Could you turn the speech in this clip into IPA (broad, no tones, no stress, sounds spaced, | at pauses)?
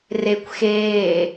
r e kʷ x eː